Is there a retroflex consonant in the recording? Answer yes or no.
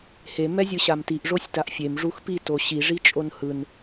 yes